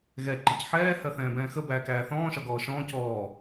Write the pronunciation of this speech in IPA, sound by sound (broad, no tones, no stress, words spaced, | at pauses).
ɣɛ ǃəcħɛː hɜθɛ̃ːbɛ̃ːxə bæːkæːθɔ̃ːʃɒ ɡɔːʃɔ̃ːc ɔː